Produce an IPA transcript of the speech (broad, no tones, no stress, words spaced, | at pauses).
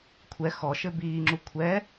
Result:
kʷʰɛ xɔʃɘ biːŋ͡ǁu kʷʰɛ